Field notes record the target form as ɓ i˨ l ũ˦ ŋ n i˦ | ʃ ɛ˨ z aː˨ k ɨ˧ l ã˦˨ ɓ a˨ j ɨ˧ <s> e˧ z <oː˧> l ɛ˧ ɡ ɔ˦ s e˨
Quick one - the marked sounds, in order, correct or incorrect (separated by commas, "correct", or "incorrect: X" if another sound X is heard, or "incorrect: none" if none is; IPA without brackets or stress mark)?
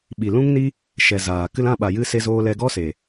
correct, correct